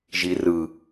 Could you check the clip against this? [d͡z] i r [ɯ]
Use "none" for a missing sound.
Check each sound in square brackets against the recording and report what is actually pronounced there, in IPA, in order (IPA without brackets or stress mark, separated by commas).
ʒ, ɯ